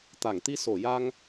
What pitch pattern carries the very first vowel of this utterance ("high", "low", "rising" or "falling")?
low